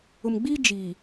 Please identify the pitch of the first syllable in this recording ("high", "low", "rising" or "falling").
low